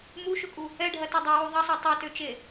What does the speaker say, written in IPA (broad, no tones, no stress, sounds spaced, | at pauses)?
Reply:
m u ʃ ʊ kʼ u | ɛ ɖʱ ɐ t o dˤ ɛ w u ðˤ ɐ sˤ o tˤ ɛ t ø t͡ʃ e